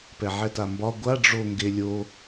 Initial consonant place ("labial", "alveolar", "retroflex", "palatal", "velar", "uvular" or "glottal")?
labial